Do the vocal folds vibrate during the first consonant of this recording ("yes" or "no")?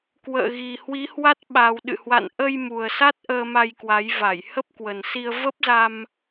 no